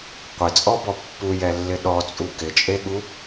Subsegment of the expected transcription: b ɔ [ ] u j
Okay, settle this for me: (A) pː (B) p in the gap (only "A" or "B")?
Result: A